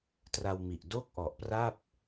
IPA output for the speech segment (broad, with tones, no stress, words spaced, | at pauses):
tra˧wmi˨˩ʔ do˥˩k̚ʔɔ˨˩ʔpra˥˩p̚